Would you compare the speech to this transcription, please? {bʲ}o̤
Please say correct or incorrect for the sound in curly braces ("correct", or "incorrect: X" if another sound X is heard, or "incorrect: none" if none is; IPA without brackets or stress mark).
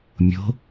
incorrect: mʲ